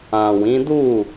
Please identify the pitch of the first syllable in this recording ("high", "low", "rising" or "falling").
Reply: low